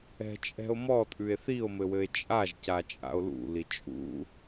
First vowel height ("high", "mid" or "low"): mid